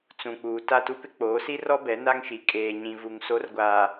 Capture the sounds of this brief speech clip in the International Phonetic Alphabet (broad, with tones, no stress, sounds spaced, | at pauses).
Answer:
t͡s ũ˨ k͡p uː˨ t a˦˨ t u˦ p ɪ˦ k͡p oː˨˦ s i˦ r ɔ˦ b ɛ˨˦ n a˦ ŋ ʃ i˨ kʼ eː˨ ɲ ĩ˨ v u˨ ŋ s o˨˦ r ɡʷ aː˨